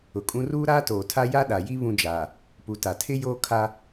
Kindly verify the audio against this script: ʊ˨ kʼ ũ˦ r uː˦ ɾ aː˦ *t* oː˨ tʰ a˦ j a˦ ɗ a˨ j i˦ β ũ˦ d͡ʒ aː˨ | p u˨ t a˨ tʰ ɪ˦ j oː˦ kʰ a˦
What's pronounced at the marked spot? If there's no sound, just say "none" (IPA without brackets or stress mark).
t